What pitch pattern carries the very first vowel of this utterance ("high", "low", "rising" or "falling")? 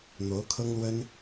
rising